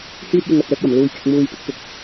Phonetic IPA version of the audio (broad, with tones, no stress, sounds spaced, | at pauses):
h yː˥ t̚ j ɪ˧ ŋ ɐ˨ t̚ œː˥ k̚ j ɐ˨˩ m l uː˧ j k ɪ˨˥ k̚ m uː˧ j p ɪ˥ k̚ p ɪ˧ k̚